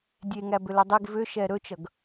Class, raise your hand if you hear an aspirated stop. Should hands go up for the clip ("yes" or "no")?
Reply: no